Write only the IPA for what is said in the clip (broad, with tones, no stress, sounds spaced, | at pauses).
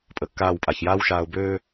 pʼ ə˨ kː aː˦˨ w pʼ a˨ ç j aː˦ w ʃ aː˨ ʊ̯ b øː˦